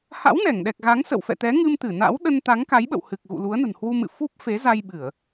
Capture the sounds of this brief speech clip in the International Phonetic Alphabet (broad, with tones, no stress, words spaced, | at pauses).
ha̰˧˥wnɛ˧˩ŋɗɛ˨˩k̚ɣa˨˦ŋ sə̰˧˨wfɛ̰˧˨t̪ɛ˨˦ ŋɨ˧mt̪ɨ˧˩na̰˧˥w ɗə˧nt̪a˨˦ŋka˨˦jɓə̰˧˨w hɨ˨˩k̚ ɣṵ˧˨lu˨˦ə̯nə̤˨˩nhwu˧ mɨ̰˧˨fu˦˥p̚ fe˨˦za˧jɓɨ˧˩˨ə̯